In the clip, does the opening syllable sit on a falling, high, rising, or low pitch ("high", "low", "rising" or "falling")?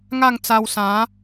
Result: falling